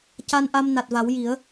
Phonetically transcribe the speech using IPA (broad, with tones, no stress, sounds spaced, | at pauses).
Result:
c a˧ n ʔ a˧ m n a˨˩ t̚ v a˨˩˦ w j i˨˩˦ ə̯